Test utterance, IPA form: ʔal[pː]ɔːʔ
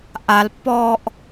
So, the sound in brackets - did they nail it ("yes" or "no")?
yes